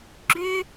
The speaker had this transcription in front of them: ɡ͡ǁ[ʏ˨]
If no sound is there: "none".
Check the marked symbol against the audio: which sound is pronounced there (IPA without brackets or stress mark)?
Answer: ʏ˦